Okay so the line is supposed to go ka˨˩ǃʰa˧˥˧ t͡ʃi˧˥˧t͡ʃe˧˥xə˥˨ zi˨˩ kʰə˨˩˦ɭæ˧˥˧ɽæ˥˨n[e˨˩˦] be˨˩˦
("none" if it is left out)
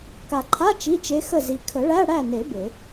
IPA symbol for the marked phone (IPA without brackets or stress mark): e˨˩˦